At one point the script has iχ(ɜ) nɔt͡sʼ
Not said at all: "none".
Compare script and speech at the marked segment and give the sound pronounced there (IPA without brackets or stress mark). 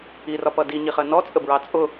ɜ